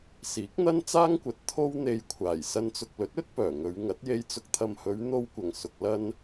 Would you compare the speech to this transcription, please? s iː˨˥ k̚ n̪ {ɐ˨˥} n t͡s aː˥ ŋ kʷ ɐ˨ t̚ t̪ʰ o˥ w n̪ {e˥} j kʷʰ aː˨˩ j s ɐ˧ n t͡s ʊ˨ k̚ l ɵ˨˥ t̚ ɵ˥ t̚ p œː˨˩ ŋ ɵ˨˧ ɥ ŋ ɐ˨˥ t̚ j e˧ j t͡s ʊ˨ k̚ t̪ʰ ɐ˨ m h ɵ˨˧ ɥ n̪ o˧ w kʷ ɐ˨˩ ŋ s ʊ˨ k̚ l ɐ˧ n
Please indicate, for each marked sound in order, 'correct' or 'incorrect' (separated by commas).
incorrect, incorrect